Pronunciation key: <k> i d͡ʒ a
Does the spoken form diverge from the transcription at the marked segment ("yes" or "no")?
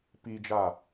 yes